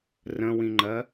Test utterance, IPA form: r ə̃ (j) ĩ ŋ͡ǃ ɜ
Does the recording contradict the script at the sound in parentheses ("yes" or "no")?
yes